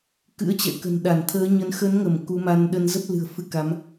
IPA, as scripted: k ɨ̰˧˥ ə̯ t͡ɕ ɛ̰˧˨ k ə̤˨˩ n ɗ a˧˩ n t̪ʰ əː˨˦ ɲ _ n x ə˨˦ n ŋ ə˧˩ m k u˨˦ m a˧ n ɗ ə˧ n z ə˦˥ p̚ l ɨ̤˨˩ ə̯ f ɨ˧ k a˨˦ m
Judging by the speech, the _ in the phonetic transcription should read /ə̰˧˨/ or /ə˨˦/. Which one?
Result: ə˨˦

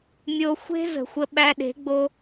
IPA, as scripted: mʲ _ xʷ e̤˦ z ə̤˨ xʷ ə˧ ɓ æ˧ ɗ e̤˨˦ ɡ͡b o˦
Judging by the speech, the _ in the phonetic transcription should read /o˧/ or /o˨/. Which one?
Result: o˧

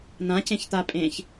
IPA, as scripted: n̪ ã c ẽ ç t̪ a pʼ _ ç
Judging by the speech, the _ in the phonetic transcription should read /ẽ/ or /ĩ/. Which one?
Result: ẽ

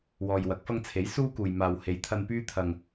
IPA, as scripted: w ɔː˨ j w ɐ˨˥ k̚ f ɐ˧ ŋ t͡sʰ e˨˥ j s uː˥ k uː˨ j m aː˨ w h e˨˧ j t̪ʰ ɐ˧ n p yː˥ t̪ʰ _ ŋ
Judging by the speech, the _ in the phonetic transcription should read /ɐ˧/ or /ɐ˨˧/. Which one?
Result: ɐ˧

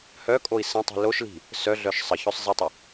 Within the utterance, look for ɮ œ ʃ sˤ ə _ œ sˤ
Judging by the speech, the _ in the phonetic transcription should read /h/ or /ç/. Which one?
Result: ç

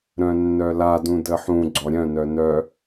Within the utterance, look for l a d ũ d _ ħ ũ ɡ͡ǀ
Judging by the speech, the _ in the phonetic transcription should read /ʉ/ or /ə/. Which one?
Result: ə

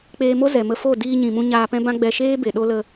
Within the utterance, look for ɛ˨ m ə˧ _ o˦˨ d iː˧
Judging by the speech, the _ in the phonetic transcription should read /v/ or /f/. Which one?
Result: f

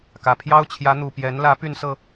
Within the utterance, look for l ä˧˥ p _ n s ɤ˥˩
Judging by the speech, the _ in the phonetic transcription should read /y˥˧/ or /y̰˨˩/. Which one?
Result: y˥˧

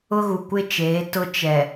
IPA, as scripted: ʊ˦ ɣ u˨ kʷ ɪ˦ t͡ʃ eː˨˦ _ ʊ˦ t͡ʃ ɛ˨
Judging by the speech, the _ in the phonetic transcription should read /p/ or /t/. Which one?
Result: t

